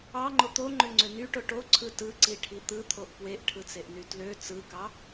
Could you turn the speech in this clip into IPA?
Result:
ɑ ŋ͡ǃ o t̪ o ŋ͡ǃ ø ŋ͡ǀ ø n y ʈ o ʈ o ǀʰ ɯ t ɯ ǀ i ʈʰ i t̪ ɯ t̪ʰ o ʔ p w e ʔ ʈʰ ɯ t͡s e ʔ n y t l ø t͡s ɯ k ɑ

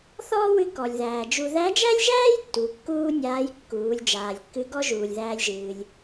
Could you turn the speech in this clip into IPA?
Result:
θ ɔː˥ w ɨ˧˥ k ɔ˩ lʲ ð æː˩ d͡ʒ u˧ ð æ˧˥ d͡ʒ æ˥ lʲ ʒ æː˥ j tː u˩˧ kː uː˥ nʲ aː˧˥ j kː uː˩˧ lʲ d͡ʒ aː˩ lʲ kː ɨ˧˥ ɡ ɔ˥ ʒ uː˩ lʲ ð æː˧ lʲ ʒ ɨː˩ lʲ

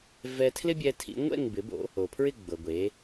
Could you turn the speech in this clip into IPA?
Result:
v ɛ˧ tʰ l ɪ˥ bʲ ɛ˧ tʰ ḭ˩˥ ŋʷ ɛ̰˥˩ ŋ b ɪ˩˥ b o̰˩˥ | o˩ pʰ ɹ ɪ˥˩ ɡ͡b ɤ˩ ɡʷ e˩˥

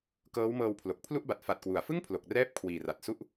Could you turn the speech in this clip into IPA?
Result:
k ɤː˦˥ w m ɤː˧ w pʰ l o˨˩ k̚ pʰ l u˥˩ ʔ b a˨˩ t̚ f a˨˩ t̚ k w u˩˦ a̯ f ɯ˥˩ ŋ pʰ l o˨˩ k̚ r ɛː˥˩ p̚ kʰ w iː˨˩ r a˨˩ t̚ s u˥˩ ʔ

